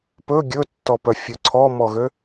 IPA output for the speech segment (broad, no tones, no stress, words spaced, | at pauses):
pɵ ɡʲɵtːɔpœ fʲɵǀʰɔmɔɣø